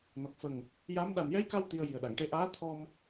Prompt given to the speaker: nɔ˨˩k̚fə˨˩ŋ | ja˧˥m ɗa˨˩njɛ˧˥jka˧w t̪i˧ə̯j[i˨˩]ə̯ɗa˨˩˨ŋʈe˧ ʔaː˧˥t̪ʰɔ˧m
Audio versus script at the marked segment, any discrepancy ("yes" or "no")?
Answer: no